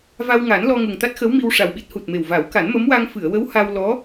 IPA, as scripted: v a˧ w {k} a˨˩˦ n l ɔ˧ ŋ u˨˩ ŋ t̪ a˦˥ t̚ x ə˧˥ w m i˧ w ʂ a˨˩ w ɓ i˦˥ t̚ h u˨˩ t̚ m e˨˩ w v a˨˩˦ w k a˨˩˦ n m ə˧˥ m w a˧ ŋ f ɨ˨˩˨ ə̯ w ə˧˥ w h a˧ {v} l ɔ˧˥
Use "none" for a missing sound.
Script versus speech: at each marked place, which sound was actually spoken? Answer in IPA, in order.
ŋ, w

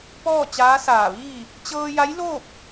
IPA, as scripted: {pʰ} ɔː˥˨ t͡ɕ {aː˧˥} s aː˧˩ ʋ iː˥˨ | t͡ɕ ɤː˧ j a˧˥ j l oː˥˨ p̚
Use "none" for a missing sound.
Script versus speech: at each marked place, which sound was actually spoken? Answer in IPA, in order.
p, aː˧˥

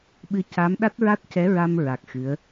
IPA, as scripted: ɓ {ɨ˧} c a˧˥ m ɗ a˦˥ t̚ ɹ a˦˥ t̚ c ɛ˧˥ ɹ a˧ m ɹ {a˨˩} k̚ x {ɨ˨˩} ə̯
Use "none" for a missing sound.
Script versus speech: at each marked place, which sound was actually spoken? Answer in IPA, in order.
ɨ˧, a˨˩, ɨ˧˥

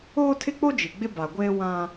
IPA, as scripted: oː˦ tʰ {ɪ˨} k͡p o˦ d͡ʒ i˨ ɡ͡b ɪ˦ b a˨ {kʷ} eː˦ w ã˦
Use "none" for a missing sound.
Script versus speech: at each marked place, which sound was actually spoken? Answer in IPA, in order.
ɪ˦, ɡʷ

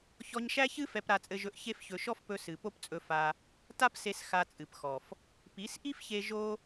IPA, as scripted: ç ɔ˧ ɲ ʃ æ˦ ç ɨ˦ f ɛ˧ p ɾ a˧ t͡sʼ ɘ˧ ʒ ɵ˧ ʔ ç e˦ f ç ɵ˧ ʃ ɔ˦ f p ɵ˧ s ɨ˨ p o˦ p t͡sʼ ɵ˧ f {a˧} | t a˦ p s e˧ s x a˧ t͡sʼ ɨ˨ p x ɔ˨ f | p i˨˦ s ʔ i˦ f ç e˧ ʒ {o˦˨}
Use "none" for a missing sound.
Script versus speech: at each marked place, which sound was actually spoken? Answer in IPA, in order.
a˧, o˦

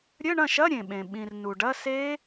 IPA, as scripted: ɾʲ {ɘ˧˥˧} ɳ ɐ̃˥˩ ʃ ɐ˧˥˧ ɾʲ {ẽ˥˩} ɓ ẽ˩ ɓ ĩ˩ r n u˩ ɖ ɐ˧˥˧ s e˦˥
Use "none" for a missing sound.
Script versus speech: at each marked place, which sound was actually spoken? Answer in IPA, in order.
ɘ˧˥˧, ẽ˩

